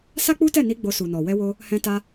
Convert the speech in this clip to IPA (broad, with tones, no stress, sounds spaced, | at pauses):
s a˦ k͡p u˦ t ɛ˦˨ n i˧ ɡ͡b o˧ s u˨ n ɔ˨ w ɛ˧ w o˧ | h ɛ̃˧ t a˧